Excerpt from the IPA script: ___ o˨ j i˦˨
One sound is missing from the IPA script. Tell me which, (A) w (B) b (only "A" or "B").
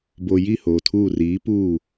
B